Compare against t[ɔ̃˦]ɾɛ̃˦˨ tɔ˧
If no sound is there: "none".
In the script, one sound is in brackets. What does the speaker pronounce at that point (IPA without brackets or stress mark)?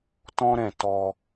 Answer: ɔ̃˦